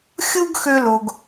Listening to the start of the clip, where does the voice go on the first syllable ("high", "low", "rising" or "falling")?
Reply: high